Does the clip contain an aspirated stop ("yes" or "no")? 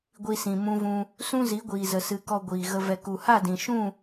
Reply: no